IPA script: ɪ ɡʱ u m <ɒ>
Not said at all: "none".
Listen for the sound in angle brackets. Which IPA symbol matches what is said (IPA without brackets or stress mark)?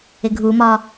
ɒ